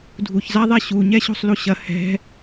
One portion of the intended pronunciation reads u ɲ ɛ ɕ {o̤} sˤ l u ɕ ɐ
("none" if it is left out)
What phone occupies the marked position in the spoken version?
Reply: o̤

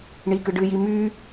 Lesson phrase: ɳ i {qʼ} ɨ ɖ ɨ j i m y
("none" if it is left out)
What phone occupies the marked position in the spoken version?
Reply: k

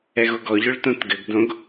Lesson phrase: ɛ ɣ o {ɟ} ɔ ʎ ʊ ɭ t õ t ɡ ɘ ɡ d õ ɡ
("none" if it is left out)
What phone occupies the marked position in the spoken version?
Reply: ɡ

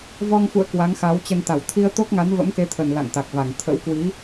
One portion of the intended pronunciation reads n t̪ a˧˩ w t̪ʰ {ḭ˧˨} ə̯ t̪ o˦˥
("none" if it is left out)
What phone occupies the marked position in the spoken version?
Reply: i˧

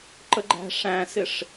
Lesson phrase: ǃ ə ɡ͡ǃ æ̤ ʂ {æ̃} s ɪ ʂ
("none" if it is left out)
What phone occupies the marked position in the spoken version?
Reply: æ̃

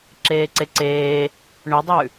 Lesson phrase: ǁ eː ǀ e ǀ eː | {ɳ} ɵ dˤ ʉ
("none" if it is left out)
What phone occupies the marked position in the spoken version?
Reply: ɳ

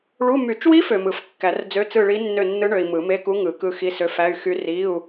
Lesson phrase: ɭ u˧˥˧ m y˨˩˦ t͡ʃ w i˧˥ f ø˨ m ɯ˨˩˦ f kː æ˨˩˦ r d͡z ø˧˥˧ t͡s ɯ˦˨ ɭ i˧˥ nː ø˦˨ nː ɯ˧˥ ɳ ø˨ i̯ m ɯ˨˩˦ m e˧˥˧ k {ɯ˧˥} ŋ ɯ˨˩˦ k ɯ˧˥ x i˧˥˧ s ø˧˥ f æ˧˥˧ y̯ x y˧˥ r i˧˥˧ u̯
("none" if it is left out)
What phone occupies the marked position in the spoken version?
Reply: u˧˥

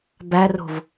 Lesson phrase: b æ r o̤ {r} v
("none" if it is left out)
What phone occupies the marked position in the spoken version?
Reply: none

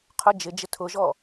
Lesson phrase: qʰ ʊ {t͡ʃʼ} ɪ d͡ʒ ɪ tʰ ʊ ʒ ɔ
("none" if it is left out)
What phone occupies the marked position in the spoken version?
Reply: d͡ʒ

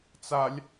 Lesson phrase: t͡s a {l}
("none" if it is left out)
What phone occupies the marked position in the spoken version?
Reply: lʲ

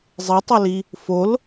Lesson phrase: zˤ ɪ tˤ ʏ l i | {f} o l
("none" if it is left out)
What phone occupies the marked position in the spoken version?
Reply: f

